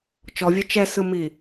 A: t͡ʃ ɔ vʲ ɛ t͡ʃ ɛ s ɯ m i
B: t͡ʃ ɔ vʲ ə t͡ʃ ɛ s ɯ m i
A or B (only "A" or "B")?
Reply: A